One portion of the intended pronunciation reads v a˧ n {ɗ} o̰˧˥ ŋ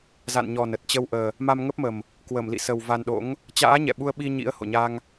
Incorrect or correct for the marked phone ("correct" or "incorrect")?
correct